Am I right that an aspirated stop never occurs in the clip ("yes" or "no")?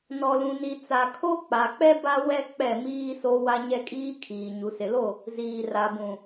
no